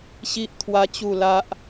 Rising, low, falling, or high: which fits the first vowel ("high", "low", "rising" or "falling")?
high